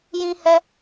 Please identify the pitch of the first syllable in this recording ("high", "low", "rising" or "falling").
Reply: high